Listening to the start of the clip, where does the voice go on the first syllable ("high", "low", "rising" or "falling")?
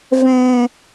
low